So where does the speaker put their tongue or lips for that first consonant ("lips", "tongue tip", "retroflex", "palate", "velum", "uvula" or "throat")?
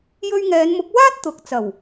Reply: palate